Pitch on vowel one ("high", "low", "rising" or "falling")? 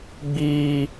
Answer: high